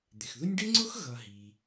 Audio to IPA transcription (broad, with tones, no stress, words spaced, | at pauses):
d̪ɪ˩xðʊ˦nʲ ɖɪ˥ŋ͡ǀʊ˥x ɣʌ˨ɦiː˩